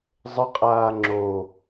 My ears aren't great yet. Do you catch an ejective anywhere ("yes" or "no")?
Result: yes